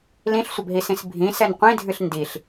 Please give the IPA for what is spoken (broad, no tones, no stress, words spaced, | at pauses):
lĩɬsʷəbɦisĩs bʱĩsɛn qʷĩdʱɨɬ ndiɬ